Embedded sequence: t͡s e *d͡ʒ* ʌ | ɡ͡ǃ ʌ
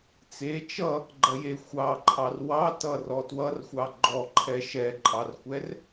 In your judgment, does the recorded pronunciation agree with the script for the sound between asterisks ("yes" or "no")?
no